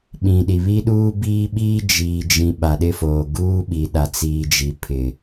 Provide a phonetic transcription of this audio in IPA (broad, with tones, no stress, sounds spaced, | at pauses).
ɓ ĩ˨ ɗ i˨ β i˦ ɗ uː˦ b iː˦ ɓ iː˦ d͡ʒ iː˨ d͡ʒ ĩ˨ ɓ a˨ ɗ ɪ˦ f oː˨ ɡ uː˦ ɓ i˨ ɗ a˨ t͡s iː˨ d͡ʒ i˨ pʰ ɪ˨